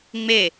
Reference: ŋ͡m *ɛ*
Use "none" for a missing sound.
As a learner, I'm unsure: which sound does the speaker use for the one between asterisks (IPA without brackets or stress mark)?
e